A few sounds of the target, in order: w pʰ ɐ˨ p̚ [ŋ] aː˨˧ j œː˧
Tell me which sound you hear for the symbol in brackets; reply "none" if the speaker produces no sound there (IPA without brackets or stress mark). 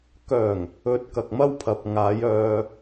ŋ